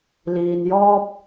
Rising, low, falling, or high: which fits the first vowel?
low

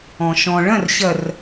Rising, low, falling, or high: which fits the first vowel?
low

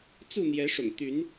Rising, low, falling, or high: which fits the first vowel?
falling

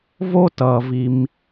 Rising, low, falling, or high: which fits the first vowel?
high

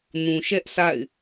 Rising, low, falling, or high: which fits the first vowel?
low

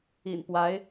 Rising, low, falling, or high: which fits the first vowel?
low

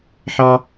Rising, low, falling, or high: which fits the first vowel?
high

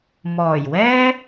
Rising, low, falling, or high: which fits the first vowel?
low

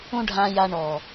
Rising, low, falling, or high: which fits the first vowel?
high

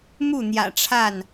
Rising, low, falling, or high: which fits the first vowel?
falling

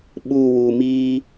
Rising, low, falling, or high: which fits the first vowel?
low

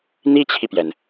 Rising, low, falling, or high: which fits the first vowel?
high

